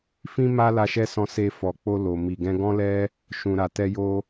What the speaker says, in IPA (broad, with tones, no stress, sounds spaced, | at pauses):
f ĩ˦ m a˦ l a˧ ʃ ɛ˦ s ɔ̃˧ s e˧ f ɔ˨ k͡p o˧ l o˨ m i˨ ɡ ɛ̃˧ ɡ ɔ̃˦ l ɛ˦ | ʃ ũ˨ ɾ a˨ t ɛ˧ j o˧